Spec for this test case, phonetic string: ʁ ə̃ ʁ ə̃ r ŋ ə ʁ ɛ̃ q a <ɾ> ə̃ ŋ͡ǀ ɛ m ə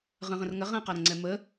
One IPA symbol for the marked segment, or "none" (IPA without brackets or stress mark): ɾ